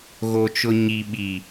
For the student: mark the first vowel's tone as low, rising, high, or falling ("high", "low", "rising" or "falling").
low